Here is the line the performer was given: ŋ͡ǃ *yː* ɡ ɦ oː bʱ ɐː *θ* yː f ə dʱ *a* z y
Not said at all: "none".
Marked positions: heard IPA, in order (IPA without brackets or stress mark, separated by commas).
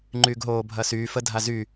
yː, s, a